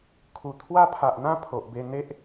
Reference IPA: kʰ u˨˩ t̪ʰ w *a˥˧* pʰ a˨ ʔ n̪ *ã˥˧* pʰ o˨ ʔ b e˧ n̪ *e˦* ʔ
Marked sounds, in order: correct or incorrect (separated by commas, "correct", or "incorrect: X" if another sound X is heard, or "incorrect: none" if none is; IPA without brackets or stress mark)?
incorrect: a˦, correct, correct